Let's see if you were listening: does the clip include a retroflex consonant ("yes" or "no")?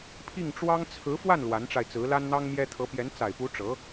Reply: yes